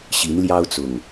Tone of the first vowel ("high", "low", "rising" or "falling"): rising